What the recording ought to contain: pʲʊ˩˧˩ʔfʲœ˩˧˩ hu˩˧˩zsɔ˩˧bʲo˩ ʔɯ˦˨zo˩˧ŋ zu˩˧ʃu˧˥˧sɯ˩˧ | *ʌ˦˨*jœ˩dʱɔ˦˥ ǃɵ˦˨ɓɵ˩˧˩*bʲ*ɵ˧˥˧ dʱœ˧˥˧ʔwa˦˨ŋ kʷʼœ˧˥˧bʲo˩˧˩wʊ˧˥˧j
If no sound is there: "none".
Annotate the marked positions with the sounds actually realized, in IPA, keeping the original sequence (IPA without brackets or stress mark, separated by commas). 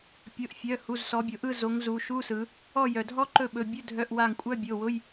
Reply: ɔ˦˨, bʲ